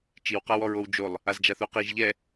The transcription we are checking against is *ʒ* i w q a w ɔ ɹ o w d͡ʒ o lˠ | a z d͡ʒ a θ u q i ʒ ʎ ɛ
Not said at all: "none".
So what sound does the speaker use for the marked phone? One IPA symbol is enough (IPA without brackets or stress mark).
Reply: t͡ʃ